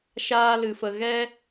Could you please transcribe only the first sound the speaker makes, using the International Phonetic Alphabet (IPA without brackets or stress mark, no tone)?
ʃ